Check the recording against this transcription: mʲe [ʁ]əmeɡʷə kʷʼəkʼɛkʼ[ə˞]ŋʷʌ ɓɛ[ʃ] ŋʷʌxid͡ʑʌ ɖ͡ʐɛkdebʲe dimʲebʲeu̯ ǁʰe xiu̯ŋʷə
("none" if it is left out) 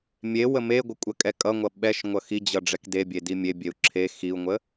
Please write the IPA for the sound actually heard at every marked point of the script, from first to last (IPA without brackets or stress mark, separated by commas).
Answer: w, ʌ, ʃ